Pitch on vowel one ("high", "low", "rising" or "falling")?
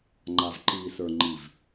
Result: low